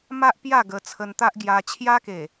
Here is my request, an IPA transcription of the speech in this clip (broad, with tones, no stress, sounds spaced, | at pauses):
m a˦ ʔ p j a˥˧ ɡ ə˧ t͡sʰ ə˧ n t̪ a˦ ʔ ɡ j a˧ t͡ɕʰ j a˦ k e˨˩